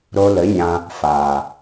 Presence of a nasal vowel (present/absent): present